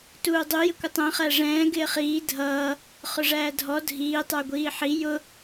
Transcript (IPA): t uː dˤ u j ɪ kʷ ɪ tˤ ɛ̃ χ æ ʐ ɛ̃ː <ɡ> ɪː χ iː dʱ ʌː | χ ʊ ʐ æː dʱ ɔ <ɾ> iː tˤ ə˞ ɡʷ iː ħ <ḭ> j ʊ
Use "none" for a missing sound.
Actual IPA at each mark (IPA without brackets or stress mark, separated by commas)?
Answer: ɡ, dʱ, i